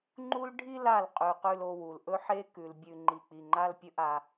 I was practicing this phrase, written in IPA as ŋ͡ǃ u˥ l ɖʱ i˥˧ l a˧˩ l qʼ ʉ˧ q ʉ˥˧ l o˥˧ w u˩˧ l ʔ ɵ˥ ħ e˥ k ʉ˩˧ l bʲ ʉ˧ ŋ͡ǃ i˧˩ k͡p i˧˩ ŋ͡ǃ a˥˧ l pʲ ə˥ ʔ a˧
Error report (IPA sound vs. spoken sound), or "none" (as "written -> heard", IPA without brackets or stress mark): ə˥ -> ɵ˥